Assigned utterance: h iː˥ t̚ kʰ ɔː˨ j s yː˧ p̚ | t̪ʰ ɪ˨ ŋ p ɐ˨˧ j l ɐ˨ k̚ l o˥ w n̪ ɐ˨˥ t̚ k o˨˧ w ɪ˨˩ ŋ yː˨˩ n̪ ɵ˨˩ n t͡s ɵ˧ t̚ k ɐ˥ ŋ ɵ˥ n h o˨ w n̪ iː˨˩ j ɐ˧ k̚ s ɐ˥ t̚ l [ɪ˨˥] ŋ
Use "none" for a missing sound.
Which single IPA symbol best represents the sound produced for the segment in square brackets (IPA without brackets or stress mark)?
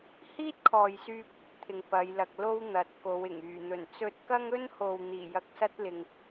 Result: ɪ˨